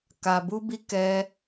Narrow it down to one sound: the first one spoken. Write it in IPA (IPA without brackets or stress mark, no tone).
k